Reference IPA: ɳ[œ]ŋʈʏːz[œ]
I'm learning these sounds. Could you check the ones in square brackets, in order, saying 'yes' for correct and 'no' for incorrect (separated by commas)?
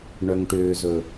yes, no